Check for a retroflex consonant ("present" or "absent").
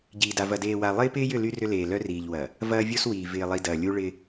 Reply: present